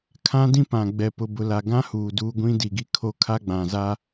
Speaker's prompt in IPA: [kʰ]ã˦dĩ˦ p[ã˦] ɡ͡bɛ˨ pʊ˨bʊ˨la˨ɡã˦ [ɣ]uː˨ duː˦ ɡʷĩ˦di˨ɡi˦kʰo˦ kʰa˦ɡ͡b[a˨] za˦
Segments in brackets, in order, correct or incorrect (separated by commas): correct, incorrect, incorrect, incorrect